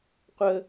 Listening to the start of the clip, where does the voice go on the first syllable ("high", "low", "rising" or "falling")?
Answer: high